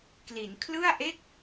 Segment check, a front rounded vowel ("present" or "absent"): absent